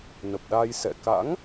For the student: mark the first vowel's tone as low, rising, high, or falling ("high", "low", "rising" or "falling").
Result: low